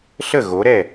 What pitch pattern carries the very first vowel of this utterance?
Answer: falling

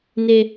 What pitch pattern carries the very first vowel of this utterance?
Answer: high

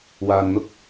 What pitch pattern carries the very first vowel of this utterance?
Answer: low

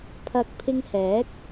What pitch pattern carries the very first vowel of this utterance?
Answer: rising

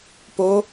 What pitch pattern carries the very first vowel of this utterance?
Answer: rising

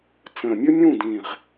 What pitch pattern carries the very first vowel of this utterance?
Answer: low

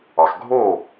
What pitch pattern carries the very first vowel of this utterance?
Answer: low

